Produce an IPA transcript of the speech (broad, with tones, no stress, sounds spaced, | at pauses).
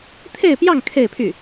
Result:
t̪ʰ e˥˧ ɪ̯ p j ɑ˥˧ ŋ kʰ e˥˧ ɪ̯ pʰ y˥˩